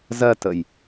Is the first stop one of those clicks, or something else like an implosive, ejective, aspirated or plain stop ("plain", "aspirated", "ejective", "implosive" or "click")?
plain